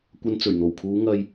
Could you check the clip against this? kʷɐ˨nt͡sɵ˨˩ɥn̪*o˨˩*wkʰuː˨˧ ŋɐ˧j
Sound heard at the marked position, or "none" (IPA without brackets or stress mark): o˨˩